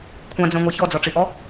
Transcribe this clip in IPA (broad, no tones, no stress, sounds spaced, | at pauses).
kʷʰ ã d͡z œ̃ ŋʷ æ ç ɔ d͡z ɔ ʈ͡ʂ i ʔ ɔ